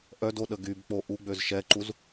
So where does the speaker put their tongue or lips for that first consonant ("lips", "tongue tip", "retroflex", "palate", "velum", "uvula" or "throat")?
throat